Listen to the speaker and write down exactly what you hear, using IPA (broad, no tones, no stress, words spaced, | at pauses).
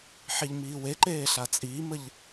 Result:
ħiʎmiːweǃeː ɬat͡sʼiːməʎ